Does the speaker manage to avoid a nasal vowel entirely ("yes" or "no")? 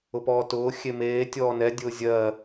yes